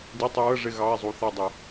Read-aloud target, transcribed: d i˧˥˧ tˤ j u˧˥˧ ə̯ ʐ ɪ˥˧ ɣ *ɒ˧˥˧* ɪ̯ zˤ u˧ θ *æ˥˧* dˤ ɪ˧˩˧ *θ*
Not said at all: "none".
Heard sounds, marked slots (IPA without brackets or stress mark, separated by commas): ɑ˧˥˧, æ˥˧, none